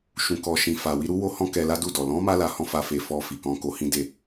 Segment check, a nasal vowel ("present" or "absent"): present